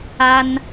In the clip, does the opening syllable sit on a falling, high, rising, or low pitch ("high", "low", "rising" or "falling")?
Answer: high